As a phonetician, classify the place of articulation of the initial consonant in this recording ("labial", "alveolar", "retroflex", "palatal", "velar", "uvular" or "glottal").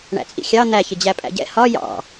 retroflex